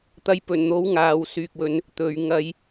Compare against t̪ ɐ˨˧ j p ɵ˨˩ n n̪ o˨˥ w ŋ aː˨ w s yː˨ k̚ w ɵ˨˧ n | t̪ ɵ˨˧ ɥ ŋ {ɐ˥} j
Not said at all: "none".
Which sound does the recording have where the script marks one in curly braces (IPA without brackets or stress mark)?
ɐ˧